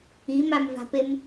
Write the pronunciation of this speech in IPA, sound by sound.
i m a m v a̤ p e m

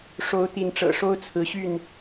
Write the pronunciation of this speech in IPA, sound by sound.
ʂ o˨˦ ʊ̯ t̪ i˨˦ n ʈ͡ʂ ɤ̰˨˩ ʂ o˦ ʊ̯ t͡sʰ ɹ̩˨˦ ɕ y˥˨ n

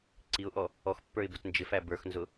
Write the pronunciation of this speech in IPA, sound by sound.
ǀ i ʊ̯ ʔ ɔ | ɔ x pː ə˞ ɪ̯ b ʊ t n d͡ʒ ɪ f æ b ə˞ x n z ʊ

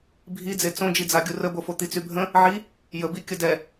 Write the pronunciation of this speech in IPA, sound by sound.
bʱ i d͡z e t͡s õ d͡ʒ i d͡z a ɡʲ u r ə b o f o t̪ i t͡s y bʱ ə̃ | ʕ i | j ə b i kʲ ə d ɛ

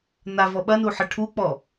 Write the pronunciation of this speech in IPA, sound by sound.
n a v ɔ ɓ ɐ n u ħ ɘ ʈʰ u k͡p ɔ

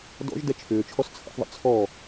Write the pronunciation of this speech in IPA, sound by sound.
d ɔ̰ ʒ d ɛ t͡ʃʰ ʏː t͡ʃʰ ɔ s t͡sʰ ə̰ θ ðˤ ə̰ t͡sʰ ɔ

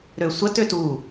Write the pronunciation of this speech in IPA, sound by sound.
ɾ ø sʷ ə t ø t u

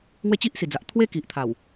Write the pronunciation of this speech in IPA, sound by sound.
ŋ w e˦ t͡ɕ i˦ ʔ s i˨˩ d͡z a˨ ʔ t̪ʰ w e˦ k i˨ ʔ t̪ʰ a˨˩ w

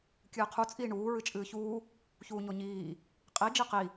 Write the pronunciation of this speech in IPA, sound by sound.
kʲ ɨː qʰ u t͡sʼ iː ɳ uː ɹ ɨ t͡ʃʼ ɨː ç uː | ç uː ɲ o ɲ iː | qʼ i d͡ʒ i q i

